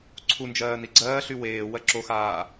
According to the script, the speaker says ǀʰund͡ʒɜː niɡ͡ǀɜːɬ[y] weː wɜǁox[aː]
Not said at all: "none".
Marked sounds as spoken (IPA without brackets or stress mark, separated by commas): y, aː